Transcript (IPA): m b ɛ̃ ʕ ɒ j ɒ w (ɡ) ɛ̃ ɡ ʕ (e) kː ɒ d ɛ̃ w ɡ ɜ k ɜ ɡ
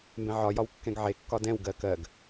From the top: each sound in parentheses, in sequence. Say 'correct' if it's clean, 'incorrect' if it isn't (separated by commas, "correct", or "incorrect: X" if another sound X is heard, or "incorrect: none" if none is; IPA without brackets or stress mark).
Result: incorrect: kː, correct